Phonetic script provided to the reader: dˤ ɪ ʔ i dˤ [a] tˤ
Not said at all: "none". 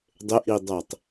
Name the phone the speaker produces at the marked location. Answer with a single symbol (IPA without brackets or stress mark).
æ